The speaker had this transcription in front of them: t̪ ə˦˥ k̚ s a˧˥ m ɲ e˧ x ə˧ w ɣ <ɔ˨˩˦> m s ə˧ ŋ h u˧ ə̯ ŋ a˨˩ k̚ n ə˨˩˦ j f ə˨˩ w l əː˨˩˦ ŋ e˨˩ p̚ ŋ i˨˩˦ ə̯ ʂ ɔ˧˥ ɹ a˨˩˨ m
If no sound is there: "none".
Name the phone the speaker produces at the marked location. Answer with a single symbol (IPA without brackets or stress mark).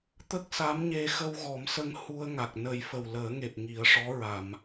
ɔ˨˩˦